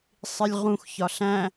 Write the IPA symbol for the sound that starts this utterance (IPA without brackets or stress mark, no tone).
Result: sˤ